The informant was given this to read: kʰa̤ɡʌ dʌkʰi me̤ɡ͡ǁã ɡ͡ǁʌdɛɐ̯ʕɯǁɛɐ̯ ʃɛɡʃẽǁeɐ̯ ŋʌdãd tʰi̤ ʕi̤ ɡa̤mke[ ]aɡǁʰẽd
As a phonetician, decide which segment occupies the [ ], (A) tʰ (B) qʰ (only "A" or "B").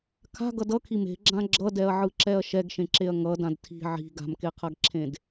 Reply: B